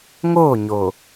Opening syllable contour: falling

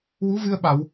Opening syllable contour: rising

